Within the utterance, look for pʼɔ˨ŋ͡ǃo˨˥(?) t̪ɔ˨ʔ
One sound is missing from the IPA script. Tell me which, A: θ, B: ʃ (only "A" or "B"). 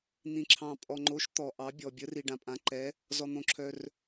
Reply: B